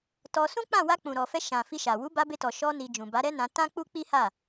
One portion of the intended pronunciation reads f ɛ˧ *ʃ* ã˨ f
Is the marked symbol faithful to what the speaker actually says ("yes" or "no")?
yes